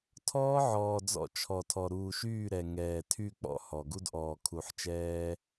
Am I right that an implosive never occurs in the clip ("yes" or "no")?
yes